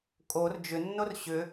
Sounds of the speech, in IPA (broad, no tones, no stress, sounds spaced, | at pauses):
kʼ o r d͡ʒ ʏ nː o r ɕ ʏ